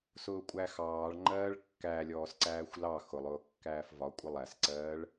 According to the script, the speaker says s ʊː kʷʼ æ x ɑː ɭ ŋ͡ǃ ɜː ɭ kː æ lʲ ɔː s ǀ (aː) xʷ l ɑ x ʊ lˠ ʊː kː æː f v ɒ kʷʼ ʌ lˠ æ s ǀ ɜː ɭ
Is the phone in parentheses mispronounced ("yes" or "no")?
yes